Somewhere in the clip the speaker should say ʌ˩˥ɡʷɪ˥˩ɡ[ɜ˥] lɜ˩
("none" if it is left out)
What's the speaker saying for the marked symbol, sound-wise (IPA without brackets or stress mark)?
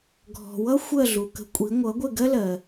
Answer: ɜ˥